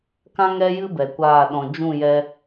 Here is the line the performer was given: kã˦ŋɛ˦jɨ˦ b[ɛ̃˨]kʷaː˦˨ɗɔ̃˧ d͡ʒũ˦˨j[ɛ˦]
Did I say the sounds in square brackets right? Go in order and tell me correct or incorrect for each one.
incorrect, incorrect

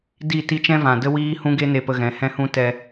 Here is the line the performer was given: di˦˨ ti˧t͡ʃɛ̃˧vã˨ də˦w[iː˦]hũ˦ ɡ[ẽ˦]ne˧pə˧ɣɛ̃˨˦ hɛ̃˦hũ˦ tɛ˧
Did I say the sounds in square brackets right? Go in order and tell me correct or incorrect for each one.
correct, incorrect

